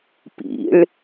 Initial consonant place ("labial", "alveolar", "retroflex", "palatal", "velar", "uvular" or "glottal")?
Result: labial